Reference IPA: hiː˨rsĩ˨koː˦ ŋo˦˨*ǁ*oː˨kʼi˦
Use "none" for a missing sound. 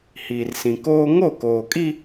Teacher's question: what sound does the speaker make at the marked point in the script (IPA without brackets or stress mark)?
k